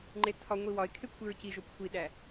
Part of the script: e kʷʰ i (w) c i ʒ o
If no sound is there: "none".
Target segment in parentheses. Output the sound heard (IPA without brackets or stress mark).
ɹ